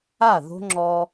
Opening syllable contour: falling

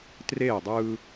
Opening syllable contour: falling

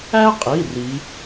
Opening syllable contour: high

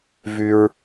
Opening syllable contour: low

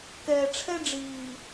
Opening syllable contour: low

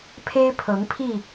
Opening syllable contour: high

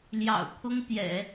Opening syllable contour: low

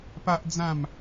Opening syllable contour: high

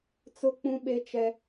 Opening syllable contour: falling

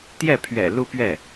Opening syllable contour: falling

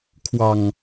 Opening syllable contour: low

